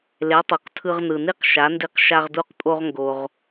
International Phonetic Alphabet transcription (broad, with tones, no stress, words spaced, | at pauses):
le˩˥tˤo˩q tʰɯ˧ʁnɯ˩ni˥q ʃa˩˥ndi˧q ʃa˧ʁdu˧qpʼo˧ʁ ŋɡo˩ʁ